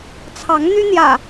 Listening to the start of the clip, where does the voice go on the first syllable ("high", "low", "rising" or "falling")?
rising